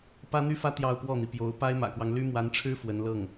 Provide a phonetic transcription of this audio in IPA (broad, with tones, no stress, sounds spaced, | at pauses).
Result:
p ä˥ n̪ y˥ f ä˥ t̪ j ɑ˥˧ ʊ̯ p w ɔ˥˩ n̪ i˩ p j o˧˥ ʊ̯ p a˥ ɪ̯ m ä̰˨˩ k w ɑ˦ ŋ l y˥ m w a˧˥ n ʈ͡ʂʰ ɻ̩˥ f w ə˧˥ n l ɤ˥˩ ŋ